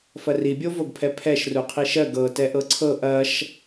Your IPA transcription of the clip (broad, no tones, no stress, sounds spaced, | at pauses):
f ɐ r i bʲ o v o ɡ pʰ ɛ pʰ ɛ ʃ r u qʰ i ʃ ɜ ɡ ɤ t ɛ ʔ ɤ ǀʰ ɤ ʔ ɐ ʃ